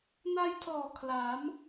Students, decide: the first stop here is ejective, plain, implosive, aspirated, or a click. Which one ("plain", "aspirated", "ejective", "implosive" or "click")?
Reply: aspirated